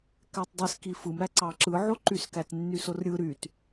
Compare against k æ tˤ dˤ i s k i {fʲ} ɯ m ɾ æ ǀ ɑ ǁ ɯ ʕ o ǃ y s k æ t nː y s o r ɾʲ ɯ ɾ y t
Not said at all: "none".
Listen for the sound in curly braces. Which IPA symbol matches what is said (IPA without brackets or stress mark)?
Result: f